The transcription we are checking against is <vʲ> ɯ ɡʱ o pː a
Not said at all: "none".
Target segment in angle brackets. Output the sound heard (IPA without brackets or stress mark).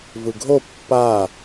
v